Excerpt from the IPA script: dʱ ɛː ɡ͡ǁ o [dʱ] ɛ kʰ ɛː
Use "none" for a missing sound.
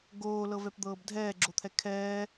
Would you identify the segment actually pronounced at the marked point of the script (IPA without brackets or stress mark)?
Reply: t̪ʰ